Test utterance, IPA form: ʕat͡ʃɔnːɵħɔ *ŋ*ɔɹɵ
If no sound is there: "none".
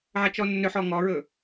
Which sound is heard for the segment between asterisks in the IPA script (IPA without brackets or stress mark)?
ŋ